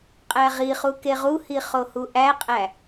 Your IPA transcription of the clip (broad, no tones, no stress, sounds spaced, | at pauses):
qʼ æ ʁ i χ u k e ʁ u h i χ o h u ʔ æ qʼ æ